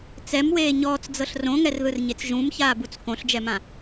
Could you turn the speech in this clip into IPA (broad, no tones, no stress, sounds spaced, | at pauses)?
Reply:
t͡s ɛ m w eː ɲ ɔː t͡s d͡z ɤ ɬ r õ ŋ ɛ r ð ɯ r ɲ e t͡s ʒ ũ m ç aː b u t͡s k õ ɬ d͡ʒ ɛ m ã